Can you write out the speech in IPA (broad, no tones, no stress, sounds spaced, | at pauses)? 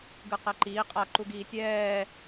ɡ ɯ q ɛ ǃ iː qʼ a ǃ u ɡ iː tʲ ɛː